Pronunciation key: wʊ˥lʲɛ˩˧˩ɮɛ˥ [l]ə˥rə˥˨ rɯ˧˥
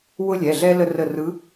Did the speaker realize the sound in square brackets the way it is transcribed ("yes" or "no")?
yes